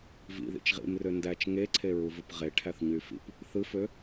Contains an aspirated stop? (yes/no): yes